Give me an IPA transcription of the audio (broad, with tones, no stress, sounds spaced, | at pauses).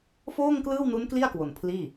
f oː˥˩ ŋ k l ɯː˥˩ w n u˦˥ n k l i˥˩ a̯ k w o˨˩ n pʰ l iː˥˩